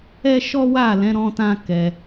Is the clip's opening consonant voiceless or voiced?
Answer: voiceless